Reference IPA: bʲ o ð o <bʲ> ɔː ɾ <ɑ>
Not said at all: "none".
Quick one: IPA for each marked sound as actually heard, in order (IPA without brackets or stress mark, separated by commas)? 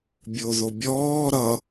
bʲ, ʌ